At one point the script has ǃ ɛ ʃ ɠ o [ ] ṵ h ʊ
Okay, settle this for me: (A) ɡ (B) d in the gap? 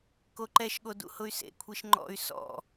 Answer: B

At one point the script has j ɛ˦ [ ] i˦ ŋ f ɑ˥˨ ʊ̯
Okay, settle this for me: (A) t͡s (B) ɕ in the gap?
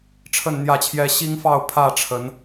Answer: B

